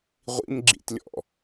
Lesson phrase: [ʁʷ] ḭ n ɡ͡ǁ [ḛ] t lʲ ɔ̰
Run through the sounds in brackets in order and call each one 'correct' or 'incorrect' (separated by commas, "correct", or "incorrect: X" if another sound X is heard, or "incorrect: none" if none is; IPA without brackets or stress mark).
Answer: correct, incorrect: ḭ